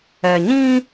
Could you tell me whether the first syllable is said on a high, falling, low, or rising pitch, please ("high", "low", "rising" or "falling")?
low